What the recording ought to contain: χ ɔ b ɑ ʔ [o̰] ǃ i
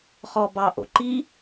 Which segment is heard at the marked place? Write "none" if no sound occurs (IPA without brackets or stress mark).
o̰